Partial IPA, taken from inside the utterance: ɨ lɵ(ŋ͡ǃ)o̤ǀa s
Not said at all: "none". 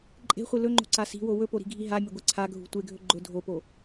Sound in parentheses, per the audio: ŋ͡ǃ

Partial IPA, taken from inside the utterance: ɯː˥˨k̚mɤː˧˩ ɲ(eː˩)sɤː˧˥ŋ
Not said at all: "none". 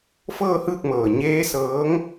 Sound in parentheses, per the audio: eː˧˥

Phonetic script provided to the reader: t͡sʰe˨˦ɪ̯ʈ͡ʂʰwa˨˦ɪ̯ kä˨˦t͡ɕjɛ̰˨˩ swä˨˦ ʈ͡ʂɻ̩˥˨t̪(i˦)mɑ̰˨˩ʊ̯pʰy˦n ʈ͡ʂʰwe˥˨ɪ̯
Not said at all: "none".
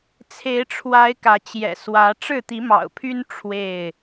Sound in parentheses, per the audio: i˨˦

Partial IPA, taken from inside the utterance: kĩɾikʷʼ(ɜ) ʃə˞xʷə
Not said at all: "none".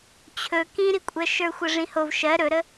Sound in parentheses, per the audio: ɜ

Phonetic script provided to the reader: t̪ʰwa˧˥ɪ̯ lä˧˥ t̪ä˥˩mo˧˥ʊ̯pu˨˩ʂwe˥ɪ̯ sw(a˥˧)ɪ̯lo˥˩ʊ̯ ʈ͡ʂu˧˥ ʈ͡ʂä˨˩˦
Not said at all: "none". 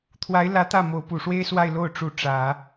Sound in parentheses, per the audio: a˥˧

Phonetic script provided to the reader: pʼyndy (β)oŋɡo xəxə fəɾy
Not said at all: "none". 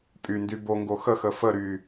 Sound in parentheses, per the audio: b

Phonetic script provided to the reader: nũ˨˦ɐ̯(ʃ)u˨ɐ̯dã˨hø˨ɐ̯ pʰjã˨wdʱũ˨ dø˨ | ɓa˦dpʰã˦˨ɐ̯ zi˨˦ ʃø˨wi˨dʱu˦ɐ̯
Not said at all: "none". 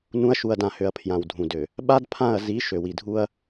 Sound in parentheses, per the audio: ʃ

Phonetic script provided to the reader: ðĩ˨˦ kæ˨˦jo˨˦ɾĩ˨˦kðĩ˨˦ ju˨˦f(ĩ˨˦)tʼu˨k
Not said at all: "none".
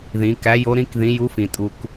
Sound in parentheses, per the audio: ĩ˨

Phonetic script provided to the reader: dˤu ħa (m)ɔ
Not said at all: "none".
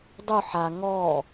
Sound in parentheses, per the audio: ŋ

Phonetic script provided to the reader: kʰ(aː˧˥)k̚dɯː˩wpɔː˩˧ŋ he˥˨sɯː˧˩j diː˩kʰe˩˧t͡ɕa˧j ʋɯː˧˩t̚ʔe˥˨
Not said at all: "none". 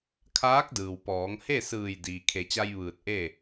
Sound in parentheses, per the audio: aː˧˥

